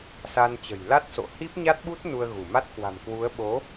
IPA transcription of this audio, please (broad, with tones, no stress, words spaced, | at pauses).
sa˧nt͡ɕə̤˨˩j la˦˥t̚so̰˧˨ hi˦˥p̚ɲa˦˥t̚ɓu˦˥t̚ nu˧ə̯ɣu˧˩ma˦˥t̚ kwa̤˨˩mkwu˨˦ə̯ ɓo˨˦